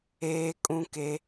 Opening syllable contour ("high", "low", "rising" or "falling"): high